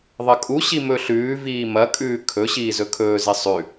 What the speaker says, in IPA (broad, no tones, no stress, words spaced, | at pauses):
ðˤɐkʼuɕi mɵɬʉːviː mɐkʼʉː kʰɵ ɕiːzɵkʰɵːze sˤʉ